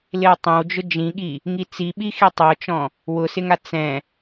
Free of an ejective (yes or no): yes